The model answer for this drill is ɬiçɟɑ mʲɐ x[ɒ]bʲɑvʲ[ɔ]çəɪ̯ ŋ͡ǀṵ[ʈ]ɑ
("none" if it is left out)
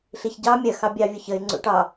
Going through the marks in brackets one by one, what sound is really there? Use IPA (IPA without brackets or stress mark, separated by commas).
ɑ, ʊ, ʈ